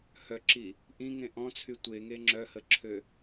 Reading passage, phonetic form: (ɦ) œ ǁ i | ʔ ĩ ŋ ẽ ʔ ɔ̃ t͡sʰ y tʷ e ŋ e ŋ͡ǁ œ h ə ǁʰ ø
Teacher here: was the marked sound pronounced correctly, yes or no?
no